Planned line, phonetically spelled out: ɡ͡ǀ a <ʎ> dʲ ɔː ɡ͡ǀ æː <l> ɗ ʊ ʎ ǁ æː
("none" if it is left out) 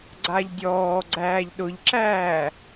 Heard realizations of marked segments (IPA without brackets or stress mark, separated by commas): ʎ, ʎ